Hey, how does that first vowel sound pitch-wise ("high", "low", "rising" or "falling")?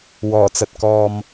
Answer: low